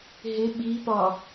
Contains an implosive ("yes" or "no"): yes